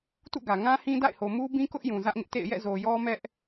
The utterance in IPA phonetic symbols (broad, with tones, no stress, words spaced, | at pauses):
tṵ˦˨ɡä˨ ŋã˦hĩ˦da̰˦˨ɪ̯ho˨ mu˦bĩ˦kʊ˦ʔjũ˨ zä˦ʔŋɪ˦ʔtḛ˦˨ɪ̯ jɛ̰˦˨zo˨jɔ˦mɛ˦ʔ